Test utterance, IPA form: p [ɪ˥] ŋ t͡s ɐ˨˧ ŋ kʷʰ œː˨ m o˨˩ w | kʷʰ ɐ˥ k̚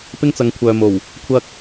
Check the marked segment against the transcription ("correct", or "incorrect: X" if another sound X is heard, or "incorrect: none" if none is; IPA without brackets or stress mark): correct